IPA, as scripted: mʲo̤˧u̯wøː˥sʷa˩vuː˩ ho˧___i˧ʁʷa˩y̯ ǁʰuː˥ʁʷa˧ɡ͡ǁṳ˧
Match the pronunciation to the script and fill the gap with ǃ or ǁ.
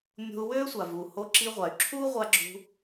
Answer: ǁ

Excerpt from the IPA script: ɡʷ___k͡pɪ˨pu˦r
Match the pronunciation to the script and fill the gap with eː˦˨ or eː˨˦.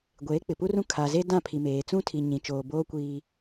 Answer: eː˨˦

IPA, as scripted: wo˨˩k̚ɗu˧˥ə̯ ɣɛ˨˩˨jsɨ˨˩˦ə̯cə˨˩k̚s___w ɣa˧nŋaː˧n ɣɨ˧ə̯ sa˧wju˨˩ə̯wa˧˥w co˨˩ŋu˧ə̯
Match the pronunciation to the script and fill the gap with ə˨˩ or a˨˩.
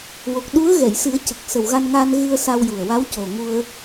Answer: ə˨˩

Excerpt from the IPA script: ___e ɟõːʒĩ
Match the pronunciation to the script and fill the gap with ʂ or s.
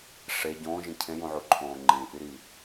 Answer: ʂ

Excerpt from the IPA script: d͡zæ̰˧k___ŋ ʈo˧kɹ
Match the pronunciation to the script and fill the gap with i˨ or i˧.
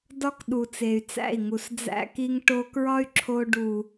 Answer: i˧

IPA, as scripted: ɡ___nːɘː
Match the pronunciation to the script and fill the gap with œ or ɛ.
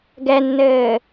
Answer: ɛ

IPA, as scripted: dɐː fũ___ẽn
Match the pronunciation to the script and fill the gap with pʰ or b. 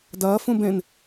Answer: b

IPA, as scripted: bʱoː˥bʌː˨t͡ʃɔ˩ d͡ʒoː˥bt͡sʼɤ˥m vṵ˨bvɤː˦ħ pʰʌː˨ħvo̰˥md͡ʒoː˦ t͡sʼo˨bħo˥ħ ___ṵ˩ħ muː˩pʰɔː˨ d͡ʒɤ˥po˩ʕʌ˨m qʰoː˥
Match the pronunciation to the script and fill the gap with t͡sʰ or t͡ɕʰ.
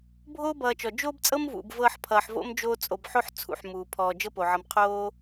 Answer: t͡sʰ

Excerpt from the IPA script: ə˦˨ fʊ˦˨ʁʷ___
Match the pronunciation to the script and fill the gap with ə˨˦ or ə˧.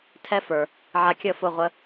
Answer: ə˧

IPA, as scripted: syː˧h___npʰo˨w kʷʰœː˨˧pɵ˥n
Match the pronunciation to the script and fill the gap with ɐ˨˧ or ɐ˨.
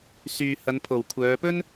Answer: ɐ˨˧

